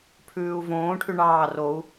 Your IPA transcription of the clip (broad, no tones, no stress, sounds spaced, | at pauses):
pʰ ʉː u̯ v õː ʈʰ y ɳ ɑː r o u̯